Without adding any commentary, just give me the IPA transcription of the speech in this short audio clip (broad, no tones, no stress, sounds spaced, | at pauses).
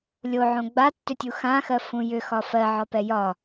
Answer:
lʲ o ʕ õ ɡ͡b a tː ʏ tʲ u x ã x ɜ f ũ j ʏ x ɒ f ɜ ʕ ɒ p ɛ j ɒ